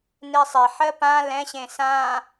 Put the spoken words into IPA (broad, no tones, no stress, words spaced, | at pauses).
nesˤeħɜ pã lɛ̃ɕẽ sã